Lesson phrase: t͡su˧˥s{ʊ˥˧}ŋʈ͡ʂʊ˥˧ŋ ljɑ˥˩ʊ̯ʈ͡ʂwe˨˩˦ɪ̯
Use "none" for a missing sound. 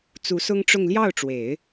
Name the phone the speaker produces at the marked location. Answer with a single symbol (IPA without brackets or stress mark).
ʊ˥